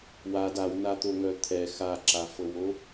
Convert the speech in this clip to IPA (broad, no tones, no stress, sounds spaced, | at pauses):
w a d a w n a t̪ o ŋ œ t̪ʰ ɛ x a ǁ a f ɤ w o